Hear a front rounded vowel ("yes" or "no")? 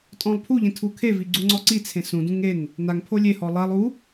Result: no